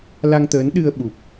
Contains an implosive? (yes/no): yes